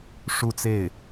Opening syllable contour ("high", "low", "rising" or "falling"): falling